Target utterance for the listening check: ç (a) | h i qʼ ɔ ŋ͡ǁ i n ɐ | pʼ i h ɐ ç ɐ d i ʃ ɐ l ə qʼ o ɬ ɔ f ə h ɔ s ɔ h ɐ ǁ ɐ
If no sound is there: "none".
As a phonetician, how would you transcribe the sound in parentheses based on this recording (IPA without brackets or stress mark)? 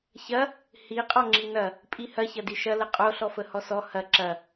ɐ